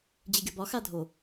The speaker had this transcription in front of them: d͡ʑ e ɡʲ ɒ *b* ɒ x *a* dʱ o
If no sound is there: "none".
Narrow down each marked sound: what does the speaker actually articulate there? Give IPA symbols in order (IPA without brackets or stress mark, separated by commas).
b, a